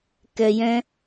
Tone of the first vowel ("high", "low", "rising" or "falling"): low